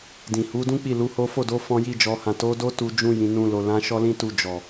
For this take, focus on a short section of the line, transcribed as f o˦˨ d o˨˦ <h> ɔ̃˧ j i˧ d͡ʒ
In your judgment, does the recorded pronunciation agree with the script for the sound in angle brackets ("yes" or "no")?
no